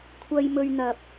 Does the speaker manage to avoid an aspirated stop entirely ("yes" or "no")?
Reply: no